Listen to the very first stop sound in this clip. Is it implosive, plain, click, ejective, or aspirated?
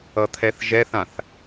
aspirated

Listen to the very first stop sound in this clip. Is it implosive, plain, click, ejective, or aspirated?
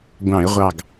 plain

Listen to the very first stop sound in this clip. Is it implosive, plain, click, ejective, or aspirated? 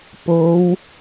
plain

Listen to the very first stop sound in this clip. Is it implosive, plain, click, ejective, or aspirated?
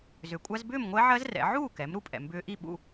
ejective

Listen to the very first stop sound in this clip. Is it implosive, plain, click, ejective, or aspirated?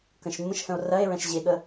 plain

